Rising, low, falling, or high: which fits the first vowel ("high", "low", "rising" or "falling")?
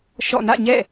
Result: falling